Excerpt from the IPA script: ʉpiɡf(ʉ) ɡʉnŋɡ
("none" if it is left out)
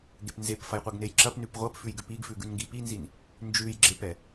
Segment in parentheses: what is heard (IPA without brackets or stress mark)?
ʉ